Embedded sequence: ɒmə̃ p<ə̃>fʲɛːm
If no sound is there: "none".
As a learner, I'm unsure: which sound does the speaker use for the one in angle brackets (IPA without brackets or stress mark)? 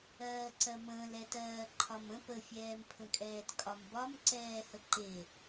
ə